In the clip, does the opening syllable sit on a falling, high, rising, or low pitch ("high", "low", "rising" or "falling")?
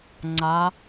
rising